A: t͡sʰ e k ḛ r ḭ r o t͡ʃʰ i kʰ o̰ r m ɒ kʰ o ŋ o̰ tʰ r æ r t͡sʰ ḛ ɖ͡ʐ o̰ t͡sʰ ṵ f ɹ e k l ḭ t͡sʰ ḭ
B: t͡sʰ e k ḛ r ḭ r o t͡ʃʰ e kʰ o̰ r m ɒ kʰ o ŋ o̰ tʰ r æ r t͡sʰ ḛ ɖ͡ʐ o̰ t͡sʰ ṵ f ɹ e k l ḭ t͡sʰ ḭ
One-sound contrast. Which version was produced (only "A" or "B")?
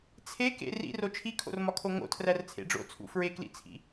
A